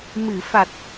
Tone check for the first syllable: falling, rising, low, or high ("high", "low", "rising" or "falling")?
low